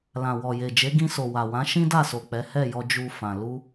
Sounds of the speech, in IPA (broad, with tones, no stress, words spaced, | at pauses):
lã˨wɔ˨je˨d͡ʒe˨˦ ɡĩ˧so˨wa˨ wã˨˦ʃĩ˦da˦˨so˨ k͡pɛ˨˦ hɛ˦˨jɔ˧ d͡ʒu˧fã˨ lu˧